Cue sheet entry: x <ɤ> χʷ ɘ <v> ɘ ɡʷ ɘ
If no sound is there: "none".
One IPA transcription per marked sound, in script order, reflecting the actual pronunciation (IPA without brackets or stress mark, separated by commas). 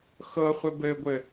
ɤ, b